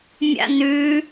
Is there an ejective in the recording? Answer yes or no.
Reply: no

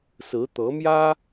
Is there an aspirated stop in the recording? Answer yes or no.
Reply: no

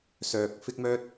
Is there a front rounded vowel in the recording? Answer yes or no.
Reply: yes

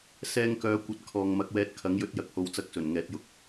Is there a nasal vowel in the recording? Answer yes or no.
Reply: no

